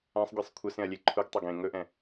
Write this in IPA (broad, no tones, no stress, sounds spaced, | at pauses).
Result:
ã sˤ ɡʲ ɛ sˤ kʷʰ ə s ẽ ɐ̯ lʲ e ǃʰ u ɡ tˤ a ɡ ẽ ŋ ɵ ʔ ɛ̃